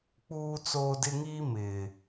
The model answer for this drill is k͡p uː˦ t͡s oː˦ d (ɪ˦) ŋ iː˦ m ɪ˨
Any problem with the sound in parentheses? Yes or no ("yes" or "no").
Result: no